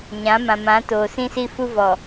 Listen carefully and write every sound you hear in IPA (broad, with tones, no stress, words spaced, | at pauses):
ɲã˨˦mã˨mã˨˦ toː˨sĩ˦si˦fu˦ vɔ˨